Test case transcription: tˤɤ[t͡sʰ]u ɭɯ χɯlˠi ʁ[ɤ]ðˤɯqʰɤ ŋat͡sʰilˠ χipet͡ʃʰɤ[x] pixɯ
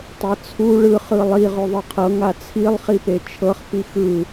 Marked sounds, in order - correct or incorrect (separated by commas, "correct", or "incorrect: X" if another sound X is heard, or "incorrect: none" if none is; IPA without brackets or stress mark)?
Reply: correct, incorrect: o, incorrect: χ